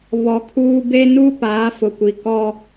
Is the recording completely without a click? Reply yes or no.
yes